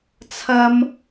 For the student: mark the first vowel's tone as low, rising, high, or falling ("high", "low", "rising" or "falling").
high